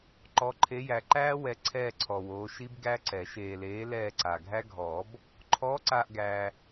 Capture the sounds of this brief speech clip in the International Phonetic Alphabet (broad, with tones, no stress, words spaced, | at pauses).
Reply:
ǃɔ˨˦ǃʰe˨˦jæ˨ǃæː˦˥ wɛ˨ ǀʰɛː˦˨ǀʰɔ˨woː˨˦ ʃi˦˥bɡæ˦˥ǀɛ˨˩˦ ʃeː˨leː˨˦ lɛː˦˨ǀa˨ ɡʱæ˦˥ɡʱɔː˨˩˦b | ǃʰɔː˨˦ǀaː˨ʔ ɡæː˨